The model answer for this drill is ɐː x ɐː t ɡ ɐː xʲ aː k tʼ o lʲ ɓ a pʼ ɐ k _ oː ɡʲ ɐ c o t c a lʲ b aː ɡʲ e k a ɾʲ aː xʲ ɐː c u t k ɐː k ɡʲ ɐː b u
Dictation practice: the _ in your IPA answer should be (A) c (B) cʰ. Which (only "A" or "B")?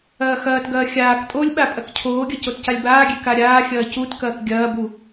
B